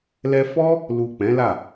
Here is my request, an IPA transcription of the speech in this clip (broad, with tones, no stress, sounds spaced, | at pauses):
l ɛ˧ f ɔ˦ | l u˨ k͡p ɛ̃˨˦ l a˦˨